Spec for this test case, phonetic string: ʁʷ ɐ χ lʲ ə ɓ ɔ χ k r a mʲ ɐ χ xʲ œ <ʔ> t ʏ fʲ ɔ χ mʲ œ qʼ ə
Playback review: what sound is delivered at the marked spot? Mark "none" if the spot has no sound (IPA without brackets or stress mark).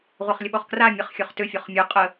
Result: χ